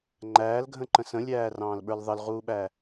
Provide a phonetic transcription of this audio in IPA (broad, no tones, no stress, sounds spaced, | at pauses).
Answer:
ŋ͡ǃ æː l ɡʱ ə̃ ǃ ə̃ s ə̃ lʲ æː r ɑ̃ː l ɓ ə˞ l ðˤ ə l ʁ uː ɓ æ